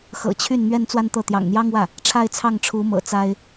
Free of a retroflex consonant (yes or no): no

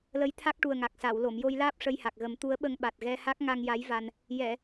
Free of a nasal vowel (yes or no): yes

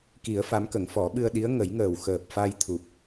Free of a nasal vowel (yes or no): yes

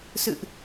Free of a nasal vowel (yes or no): yes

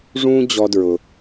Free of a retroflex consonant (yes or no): no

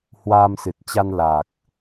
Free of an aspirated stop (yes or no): yes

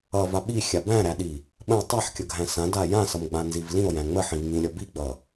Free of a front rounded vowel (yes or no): yes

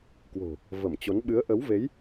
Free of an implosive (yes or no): no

